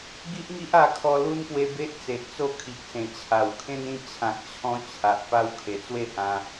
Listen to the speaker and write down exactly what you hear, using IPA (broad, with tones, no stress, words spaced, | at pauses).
ɡi˦ʔŋi˦ʔa˧ kʰɔ˧lu˦npwe˧be˦ʔ t͡se˨ʔ t͡so˥˧ kʰi˨k̚ sẽ˨˩ t͡ɕʰa˨˩wkʰẽ˦nĩ˥˧ t͡ɕʰã˨k̚t͡ɕʰɔ̃˧ t͡ɕʰa˨ʔpa˧w kʰe˨˩t͡swe˥˧hã˧